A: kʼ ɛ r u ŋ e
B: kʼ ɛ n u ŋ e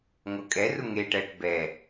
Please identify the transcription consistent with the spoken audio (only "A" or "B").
A